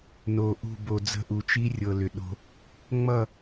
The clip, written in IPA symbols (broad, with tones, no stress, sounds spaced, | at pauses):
n o˨ ʔ ṳ˦˨ b o˨ d͡z ə̤˦ ʔ u˨ t͡ʃ i˦ rʲ ɤ˨ l ʏ˨ ɗ o̤˦ | ŋ͡m ʌ˦˨